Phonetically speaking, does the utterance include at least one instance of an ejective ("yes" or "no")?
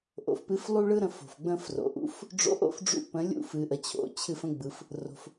no